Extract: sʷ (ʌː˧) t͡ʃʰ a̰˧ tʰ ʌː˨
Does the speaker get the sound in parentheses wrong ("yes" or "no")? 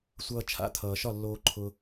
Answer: no